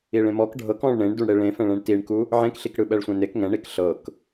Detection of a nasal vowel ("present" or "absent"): present